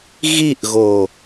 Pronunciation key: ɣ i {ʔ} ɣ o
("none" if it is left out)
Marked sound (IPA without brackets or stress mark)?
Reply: ʔ